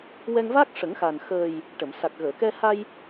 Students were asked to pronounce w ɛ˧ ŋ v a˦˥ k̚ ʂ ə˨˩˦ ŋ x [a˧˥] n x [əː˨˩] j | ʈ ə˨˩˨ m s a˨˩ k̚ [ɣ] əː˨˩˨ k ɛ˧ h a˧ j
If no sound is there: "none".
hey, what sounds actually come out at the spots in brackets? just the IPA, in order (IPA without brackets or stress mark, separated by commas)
a˨˩, əː˨˩, ɣ